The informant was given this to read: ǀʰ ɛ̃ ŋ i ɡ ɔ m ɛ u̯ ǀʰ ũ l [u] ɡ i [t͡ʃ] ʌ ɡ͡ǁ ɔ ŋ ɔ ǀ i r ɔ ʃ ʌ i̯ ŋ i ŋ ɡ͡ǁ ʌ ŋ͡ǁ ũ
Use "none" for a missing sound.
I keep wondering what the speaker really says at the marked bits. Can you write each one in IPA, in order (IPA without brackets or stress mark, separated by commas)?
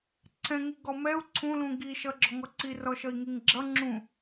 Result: ũ, ʃ